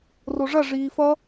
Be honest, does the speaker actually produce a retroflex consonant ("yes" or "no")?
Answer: yes